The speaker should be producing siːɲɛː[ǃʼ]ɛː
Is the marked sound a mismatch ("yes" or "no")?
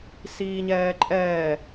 no